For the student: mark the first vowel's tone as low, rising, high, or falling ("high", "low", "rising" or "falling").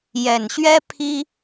low